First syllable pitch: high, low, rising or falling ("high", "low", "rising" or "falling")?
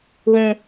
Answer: high